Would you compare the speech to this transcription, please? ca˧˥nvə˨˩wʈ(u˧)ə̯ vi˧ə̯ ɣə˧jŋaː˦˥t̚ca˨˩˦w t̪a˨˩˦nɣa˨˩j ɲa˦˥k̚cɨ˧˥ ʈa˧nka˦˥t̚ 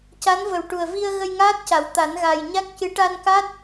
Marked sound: incorrect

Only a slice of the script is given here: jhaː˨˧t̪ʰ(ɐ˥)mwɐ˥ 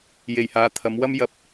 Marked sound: incorrect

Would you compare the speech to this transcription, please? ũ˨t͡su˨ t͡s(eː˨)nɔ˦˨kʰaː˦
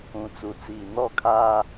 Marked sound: incorrect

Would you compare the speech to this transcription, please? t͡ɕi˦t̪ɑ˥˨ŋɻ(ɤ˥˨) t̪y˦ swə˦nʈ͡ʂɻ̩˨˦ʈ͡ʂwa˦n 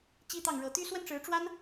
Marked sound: incorrect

